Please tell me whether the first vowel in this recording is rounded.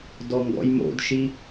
yes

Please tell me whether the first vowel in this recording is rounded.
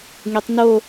no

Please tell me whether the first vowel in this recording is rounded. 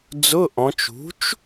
yes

